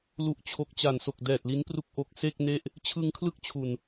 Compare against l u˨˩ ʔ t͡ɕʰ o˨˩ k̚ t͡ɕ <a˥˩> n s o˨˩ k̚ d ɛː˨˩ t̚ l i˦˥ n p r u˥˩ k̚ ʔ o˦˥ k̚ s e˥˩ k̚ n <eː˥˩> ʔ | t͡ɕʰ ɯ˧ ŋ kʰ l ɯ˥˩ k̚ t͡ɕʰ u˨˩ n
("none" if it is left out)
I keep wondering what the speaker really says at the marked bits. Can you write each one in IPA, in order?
a˨˩, e˥˩

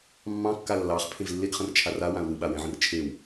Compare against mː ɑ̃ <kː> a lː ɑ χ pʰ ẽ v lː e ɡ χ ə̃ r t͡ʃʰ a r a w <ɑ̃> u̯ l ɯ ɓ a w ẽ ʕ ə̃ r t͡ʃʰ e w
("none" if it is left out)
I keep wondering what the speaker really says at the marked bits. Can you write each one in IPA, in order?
kː, ã

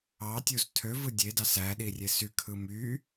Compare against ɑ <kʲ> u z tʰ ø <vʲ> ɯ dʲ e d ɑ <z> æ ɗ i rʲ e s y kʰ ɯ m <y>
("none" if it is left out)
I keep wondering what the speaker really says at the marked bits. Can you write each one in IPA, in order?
tʲ, v, s, y

